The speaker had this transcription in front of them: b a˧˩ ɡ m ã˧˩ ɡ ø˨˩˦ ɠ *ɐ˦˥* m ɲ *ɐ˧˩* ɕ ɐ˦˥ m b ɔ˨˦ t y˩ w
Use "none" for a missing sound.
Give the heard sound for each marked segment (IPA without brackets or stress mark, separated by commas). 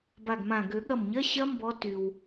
ɐ˧˩, ɐ˧˥˧